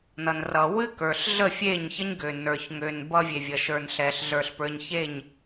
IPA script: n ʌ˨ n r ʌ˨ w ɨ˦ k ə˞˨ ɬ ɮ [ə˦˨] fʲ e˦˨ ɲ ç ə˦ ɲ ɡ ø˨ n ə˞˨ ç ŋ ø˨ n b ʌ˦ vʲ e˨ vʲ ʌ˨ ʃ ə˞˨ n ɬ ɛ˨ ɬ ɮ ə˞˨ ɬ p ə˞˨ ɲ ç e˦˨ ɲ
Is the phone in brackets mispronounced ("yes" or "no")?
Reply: no